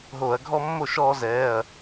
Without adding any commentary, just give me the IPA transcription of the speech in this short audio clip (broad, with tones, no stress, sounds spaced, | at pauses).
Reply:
ɦ oː˧˩˧ ɐ̯ ɡʱ ɔ˦ mː o˥˩ ʃ ɔː˦ z ɛː˩˧˩ ɐ̯